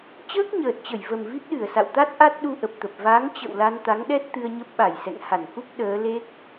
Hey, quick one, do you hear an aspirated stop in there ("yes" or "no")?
no